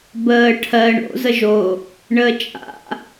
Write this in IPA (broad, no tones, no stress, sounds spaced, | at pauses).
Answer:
b əː ʈʰ ɜ ɳ o̰ z ə ʒ o | ɳ əː t͡ʃʼ a̰